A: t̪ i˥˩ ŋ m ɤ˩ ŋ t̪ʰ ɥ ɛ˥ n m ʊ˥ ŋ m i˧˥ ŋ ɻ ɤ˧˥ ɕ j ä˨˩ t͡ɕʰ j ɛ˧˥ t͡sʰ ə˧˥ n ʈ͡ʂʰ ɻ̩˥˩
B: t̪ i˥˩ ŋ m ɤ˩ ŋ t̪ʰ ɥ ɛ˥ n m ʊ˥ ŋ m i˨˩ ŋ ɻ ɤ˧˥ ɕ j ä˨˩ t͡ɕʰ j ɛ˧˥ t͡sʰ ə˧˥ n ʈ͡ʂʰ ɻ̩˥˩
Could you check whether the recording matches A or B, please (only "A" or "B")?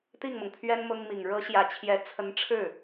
B